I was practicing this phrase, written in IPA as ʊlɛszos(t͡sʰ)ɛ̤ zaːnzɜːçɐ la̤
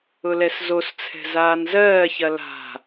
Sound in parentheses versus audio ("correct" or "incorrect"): correct